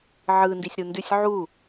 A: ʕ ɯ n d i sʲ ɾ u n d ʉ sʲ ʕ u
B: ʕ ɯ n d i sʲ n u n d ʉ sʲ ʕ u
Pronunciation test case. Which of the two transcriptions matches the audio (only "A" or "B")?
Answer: A